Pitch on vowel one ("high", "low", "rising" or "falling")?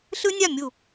high